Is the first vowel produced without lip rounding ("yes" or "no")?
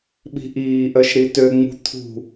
yes